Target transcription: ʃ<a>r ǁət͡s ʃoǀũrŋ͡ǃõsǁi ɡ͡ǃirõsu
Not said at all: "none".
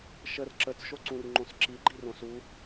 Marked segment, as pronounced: ə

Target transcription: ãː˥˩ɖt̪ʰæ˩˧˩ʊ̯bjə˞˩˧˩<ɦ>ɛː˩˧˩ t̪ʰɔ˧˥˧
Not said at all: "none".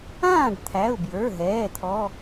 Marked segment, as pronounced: ɦ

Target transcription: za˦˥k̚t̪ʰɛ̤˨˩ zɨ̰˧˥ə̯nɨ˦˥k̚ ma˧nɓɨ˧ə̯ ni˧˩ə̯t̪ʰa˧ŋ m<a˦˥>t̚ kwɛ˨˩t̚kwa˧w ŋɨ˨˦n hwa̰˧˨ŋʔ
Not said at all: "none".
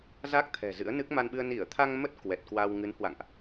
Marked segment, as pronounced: ə˦˥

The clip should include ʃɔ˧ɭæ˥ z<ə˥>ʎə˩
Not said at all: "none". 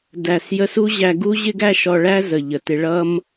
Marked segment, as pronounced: ə˩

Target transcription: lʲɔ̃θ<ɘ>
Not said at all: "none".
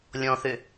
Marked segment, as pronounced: ø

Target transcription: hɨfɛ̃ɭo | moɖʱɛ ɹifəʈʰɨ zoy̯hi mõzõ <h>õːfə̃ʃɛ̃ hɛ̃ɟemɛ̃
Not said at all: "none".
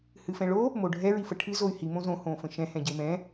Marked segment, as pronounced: h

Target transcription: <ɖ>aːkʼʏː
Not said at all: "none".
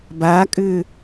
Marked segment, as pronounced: b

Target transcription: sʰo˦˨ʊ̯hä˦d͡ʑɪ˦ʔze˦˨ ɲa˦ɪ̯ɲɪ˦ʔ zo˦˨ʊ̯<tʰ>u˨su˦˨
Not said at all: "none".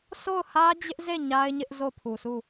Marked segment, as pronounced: pʰ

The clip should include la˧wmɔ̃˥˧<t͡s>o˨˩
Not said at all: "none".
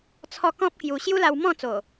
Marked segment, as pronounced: t͡s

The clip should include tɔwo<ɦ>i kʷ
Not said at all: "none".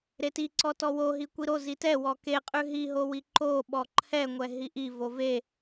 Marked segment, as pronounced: ɦ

